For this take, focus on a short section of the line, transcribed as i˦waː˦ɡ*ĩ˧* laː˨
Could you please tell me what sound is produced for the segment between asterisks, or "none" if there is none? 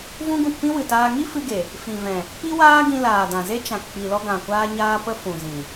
ĩ˧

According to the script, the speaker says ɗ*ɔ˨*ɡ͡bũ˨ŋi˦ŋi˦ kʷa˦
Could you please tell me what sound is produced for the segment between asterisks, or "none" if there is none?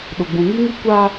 ʊ˨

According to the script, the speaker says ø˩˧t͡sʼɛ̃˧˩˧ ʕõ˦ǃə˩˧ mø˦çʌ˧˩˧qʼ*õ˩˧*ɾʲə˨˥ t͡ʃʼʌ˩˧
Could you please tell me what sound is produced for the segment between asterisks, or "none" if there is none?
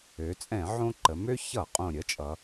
õ˨˩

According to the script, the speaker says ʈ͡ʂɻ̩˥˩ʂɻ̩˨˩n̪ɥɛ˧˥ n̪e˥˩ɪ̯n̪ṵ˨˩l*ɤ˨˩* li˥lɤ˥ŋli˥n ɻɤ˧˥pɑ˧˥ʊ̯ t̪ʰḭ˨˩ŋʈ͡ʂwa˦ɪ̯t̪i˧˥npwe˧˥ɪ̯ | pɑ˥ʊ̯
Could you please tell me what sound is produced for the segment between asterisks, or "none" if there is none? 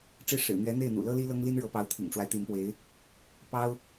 ɤ˥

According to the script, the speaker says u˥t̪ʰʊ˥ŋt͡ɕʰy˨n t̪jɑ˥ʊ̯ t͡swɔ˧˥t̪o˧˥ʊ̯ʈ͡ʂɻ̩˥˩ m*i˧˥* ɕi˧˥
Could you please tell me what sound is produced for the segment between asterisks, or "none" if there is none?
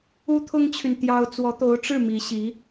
i˧˥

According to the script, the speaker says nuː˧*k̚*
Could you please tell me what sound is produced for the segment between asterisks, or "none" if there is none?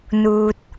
t̚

